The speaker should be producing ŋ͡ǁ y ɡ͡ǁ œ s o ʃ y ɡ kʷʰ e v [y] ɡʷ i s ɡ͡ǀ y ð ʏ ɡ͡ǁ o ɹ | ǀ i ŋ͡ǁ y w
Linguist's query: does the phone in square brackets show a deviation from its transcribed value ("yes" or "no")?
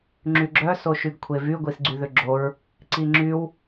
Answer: no